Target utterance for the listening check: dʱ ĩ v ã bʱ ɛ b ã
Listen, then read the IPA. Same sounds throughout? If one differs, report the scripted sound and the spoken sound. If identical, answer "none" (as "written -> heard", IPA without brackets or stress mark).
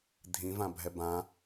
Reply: none